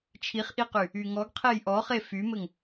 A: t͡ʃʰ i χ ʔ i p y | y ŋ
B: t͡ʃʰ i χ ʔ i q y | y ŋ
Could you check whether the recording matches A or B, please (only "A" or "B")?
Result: B